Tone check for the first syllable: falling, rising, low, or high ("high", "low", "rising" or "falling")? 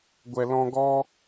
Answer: low